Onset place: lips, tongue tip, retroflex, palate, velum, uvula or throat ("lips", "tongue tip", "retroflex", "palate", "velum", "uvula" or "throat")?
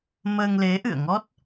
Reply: lips